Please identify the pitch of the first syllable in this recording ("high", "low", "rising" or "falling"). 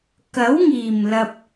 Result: rising